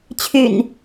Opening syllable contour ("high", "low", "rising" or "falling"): low